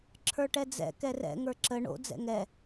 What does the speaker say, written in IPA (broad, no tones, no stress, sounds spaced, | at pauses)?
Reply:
ǁʰ ə˞ ʈ ɛ d͡z ɛ̰ k ɛ r ɛ̰ ŋ ə˞ ǁ ə ɳ o̰ d͡z ɛ̰ ŋ ɛ